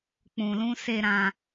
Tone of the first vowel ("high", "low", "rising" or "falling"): low